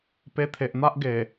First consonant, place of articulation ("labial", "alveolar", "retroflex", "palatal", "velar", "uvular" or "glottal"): labial